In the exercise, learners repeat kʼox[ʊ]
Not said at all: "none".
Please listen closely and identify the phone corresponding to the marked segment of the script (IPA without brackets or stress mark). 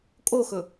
ɵ